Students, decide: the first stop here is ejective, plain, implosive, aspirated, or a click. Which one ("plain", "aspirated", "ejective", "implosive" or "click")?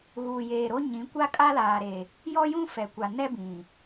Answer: plain